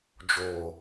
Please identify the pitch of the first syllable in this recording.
low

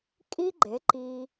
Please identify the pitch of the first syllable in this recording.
high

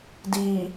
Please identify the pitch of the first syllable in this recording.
low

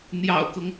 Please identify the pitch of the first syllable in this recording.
low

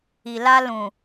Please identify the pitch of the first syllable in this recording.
low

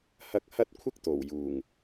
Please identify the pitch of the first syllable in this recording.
high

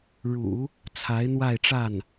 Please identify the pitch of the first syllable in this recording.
low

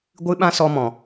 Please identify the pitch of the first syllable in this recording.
high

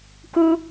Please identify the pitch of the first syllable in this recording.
high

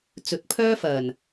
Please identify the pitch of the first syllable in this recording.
rising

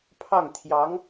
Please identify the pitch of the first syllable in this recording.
falling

